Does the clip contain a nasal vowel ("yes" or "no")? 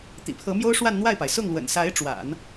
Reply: no